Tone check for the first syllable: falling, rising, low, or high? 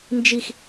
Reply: falling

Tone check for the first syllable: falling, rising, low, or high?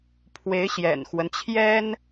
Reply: rising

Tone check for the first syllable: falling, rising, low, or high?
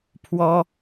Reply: high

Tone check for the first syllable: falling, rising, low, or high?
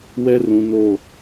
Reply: high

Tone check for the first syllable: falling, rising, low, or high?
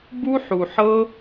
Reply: high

